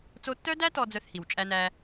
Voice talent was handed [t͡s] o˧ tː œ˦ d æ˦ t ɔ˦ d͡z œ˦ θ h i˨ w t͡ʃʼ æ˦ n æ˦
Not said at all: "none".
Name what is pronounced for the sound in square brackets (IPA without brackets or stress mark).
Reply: t͡s